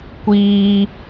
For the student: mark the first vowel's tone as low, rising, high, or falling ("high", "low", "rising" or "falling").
high